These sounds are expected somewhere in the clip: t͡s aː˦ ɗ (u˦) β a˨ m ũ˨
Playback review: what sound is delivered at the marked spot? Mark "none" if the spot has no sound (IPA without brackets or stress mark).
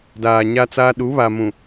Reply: u˨˦